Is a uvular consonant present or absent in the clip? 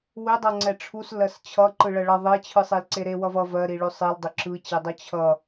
absent